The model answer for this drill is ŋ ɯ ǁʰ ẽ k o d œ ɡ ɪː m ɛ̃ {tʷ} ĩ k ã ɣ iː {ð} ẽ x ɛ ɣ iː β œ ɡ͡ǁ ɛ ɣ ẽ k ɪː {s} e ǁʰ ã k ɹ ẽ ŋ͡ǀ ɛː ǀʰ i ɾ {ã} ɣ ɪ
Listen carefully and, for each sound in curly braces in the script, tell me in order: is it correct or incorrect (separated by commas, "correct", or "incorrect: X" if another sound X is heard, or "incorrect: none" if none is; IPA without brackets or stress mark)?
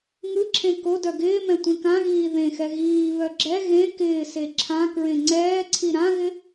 correct, correct, correct, correct